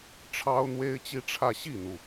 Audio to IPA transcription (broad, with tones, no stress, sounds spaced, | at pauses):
ʈ͡ʂʰ ɑ˥ ʊ̯ n̪ w e˥ ɪ̯ t͡ɕ i˥ ʈ͡ʂʰ ä˥˧ ɕ i˥˩ n̪ u˩